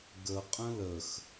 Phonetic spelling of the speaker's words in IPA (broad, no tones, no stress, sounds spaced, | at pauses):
ɡ ə qʼ ə̃ l ə x